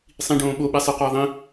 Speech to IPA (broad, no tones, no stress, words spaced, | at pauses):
sˤĩɖõː ɓoɓɛ sˤɯqʌː ðˤĩ